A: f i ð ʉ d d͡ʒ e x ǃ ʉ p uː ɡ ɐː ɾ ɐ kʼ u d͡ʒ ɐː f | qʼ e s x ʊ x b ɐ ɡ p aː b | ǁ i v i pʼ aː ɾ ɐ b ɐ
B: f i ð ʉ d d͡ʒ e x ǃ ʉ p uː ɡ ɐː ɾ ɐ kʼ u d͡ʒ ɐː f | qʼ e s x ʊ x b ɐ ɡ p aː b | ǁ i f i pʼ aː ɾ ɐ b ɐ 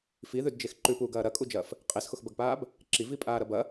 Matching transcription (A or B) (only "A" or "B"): A